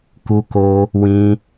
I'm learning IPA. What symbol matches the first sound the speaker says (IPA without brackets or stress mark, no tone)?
k